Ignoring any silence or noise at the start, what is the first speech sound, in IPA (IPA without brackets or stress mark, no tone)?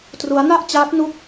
t